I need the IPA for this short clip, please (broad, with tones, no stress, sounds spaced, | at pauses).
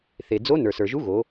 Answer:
θ e˩ d͡z o˧˥ n ə˞˩ s ə˞˩ ʒ u˧˥ ɣ o˩˧